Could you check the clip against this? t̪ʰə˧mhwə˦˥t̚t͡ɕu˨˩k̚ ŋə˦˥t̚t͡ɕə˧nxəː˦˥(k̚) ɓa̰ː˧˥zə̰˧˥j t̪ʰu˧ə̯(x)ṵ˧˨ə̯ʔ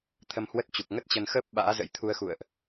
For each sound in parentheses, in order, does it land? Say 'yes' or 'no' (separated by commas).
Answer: no, yes